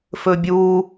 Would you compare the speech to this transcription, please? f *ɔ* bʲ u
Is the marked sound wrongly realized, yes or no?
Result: yes